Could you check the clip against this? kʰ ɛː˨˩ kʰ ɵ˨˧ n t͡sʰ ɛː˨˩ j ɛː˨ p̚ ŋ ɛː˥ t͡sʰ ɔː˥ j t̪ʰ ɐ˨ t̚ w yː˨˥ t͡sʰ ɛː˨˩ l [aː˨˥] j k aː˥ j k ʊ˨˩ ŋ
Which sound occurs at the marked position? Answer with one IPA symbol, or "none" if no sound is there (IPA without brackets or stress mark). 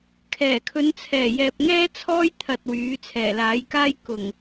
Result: aː˨˥